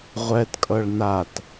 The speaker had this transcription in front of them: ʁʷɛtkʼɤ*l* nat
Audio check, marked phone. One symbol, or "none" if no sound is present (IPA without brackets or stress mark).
ɭ